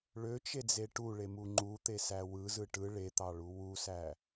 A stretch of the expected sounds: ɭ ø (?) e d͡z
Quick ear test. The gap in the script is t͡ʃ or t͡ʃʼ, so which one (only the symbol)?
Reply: t͡ʃ